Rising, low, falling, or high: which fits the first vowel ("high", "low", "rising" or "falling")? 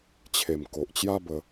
low